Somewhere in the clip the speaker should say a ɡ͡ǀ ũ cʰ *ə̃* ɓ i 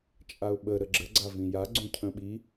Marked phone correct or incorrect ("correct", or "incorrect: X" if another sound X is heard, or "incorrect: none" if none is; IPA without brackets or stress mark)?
correct